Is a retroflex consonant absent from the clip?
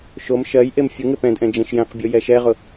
yes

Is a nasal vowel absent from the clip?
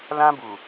no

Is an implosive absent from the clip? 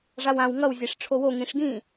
yes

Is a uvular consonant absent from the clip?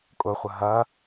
no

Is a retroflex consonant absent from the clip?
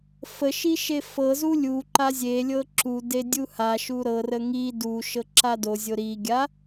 yes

